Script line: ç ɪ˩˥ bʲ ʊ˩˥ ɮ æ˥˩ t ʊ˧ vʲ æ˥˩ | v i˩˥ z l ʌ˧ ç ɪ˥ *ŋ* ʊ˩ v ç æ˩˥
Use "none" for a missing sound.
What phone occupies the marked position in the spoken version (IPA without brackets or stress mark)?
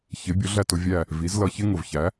ŋ